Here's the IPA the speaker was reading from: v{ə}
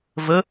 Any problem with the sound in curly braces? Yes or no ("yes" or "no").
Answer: no